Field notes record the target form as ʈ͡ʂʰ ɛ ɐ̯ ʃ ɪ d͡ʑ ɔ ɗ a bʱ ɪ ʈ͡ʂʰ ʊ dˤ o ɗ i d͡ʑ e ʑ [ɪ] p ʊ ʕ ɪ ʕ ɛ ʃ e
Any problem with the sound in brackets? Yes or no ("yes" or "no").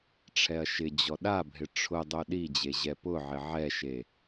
yes